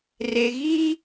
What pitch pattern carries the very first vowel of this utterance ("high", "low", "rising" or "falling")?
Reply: low